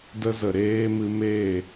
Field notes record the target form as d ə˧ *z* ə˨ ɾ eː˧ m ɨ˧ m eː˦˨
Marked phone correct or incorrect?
correct